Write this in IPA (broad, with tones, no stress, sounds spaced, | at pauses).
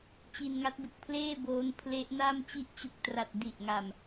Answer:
t͡ɕ i˧ n ŋ a˦˥ t̚ b ɯ˨˩ k̚ pʰ l eː˥˩ b oː˦˥ n pʰ l e˦˥ ʔ n a˥˩ m t͡ɕ i˦˥ ʔ t͡ɕ u˨˩ k̚ t r a˨˩ t̚ d i˨˩ ʔ ŋ a˨˩ m